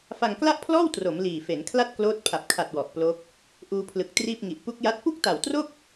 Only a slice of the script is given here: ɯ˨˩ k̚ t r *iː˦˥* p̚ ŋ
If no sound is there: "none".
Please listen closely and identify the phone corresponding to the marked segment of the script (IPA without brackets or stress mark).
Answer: iː˥˩